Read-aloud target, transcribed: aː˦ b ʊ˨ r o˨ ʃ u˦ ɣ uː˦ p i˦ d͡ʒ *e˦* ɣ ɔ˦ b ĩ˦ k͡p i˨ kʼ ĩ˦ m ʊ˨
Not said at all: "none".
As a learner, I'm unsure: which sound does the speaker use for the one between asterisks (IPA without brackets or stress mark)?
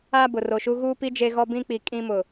e˦